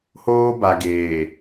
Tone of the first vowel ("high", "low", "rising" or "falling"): high